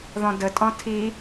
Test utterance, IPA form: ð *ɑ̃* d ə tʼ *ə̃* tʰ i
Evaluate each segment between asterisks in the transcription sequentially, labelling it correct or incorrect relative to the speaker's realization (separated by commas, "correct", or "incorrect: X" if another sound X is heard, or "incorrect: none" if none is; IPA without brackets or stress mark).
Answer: incorrect: ɔ̃, incorrect: ɔ̃